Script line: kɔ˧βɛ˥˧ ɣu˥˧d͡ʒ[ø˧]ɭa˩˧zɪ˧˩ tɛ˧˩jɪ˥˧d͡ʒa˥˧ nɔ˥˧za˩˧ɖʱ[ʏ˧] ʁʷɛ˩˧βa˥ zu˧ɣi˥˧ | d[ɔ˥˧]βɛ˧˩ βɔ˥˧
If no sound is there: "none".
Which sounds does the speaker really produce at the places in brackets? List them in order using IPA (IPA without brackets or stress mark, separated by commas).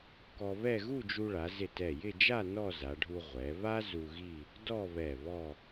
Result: u˧, u˧, ɔ˥˧